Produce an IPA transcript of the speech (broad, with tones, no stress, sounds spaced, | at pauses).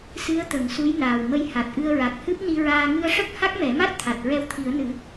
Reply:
s ɨ˧˥ ə̯ t̪ ə˨˩˦ ŋ s u˧˥ j n aː˨˩ w m ə˧ j h a˨˩ t̚ ʔ ɨ˧ ə̯ ɹ a˨˩ k̚ h ɨ˦˥ p̚ n i˧ ɹ aː˧ ŋ ɨ˧ ə̯ ʂ ə˦˥ k̚ h a˦˥ k̚ m ɛ˨˩˦ m a˦˥ t̚ t̪ʰ a˨˩ t̚ ɹ ɛ˧ w t̪ʰ i˨˩˦ ə̯ n ɨ˨˩˦